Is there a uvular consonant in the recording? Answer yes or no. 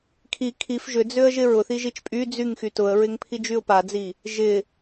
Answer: no